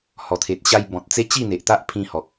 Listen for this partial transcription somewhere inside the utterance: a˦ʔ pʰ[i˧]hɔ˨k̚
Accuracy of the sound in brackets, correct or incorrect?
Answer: incorrect